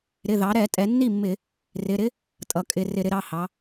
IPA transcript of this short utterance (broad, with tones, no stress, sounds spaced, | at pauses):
ɾ ɪ˩˧˩ ð ɑ˩˧ ɾ ɛ˧˩˧ tʼ ɛ˩˧ nː i˥˩ mː ɪ˧˩˧ | r ɪ˩˧˩ ɾ ɪ˥ | tʼ ʌ˩˧ kʼ ɪ˩˧˩ r ɪ˧˩˧ ɾ ɪ˩˧ ɾ ɑ˩˧˩ h ɑ˩˧